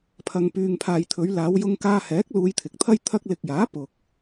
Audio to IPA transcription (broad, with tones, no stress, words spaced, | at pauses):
pʰɐ˨ŋpyː˨ŋpʰaː˨j t̪ʰɵ˨˧ɥlaː˨˧w jʊ˧ŋkaː˧hɛː˨˥k̚ luː˧jt̪ʰɪ˨k̚t̪ʰɐ˥j t̪ʰɐ˧k̚lɪ˨k̚jaː˨˥ pʊ˨k̚